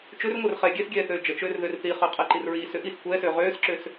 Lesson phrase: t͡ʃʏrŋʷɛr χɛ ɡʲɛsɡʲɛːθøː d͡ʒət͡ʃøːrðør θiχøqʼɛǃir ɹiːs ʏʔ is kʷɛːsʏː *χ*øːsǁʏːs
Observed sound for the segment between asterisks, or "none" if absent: ʁ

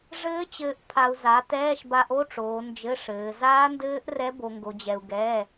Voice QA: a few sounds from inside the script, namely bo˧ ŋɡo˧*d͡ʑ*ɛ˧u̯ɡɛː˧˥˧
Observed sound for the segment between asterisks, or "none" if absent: d͡ʑ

